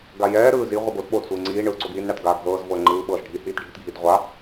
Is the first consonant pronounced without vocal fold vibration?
no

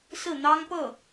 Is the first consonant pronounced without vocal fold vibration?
yes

